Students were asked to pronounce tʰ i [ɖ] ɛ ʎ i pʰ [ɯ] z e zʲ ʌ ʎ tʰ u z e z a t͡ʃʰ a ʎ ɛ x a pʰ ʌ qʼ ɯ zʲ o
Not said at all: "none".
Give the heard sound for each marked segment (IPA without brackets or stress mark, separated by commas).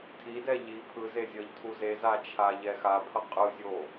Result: d, ɯ